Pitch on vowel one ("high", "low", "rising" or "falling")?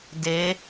rising